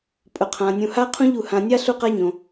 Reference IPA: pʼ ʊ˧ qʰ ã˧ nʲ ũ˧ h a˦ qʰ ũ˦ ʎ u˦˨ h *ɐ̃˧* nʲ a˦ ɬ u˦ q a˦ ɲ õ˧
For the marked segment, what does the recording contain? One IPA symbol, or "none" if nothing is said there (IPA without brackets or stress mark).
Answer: ã˧